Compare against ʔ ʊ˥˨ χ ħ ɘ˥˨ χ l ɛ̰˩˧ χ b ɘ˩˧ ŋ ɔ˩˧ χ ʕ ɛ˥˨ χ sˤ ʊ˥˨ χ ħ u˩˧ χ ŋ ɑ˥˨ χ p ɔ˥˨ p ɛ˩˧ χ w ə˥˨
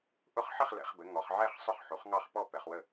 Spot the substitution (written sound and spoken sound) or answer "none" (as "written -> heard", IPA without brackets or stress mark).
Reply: none